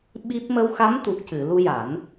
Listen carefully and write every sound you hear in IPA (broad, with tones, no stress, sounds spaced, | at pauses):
ɓ i˦˥ p̚ m ə˧ w x a˧˥ m t̪ u˨˩ k̚ c ɨ˨˩˨ l u˧ j a˨˩˦ n